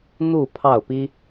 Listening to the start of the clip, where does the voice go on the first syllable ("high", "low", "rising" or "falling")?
falling